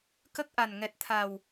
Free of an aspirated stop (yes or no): no